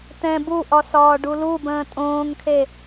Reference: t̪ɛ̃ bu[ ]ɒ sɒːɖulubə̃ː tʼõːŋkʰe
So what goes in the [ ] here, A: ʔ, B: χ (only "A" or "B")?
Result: A